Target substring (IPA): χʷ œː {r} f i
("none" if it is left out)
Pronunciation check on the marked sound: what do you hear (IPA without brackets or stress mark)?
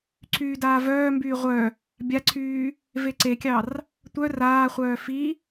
none